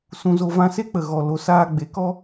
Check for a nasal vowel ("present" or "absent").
present